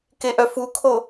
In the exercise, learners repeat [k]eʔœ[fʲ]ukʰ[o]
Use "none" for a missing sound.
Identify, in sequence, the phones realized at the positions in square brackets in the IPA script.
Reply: k, f, o

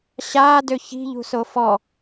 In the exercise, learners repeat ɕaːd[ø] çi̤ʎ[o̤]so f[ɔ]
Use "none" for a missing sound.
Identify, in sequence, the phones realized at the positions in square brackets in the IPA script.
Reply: ø, ṳ, ɔ

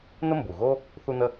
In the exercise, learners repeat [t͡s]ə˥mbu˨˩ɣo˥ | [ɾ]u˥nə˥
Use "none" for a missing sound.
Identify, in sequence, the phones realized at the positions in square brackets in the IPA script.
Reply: n, θ

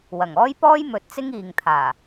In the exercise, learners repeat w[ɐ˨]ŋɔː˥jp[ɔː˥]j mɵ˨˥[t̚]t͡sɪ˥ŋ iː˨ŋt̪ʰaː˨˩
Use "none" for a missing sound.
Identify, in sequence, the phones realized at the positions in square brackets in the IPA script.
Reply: ɐ˨˩, ɔː˥, t̚

